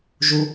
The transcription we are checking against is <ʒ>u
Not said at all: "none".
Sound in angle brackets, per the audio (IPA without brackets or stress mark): ʒ